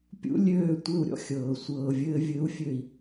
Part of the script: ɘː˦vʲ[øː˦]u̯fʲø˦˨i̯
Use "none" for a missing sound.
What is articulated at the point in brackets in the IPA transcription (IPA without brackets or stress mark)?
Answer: ɘː˦